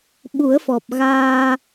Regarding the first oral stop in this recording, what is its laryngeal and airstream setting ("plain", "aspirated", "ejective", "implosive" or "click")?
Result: implosive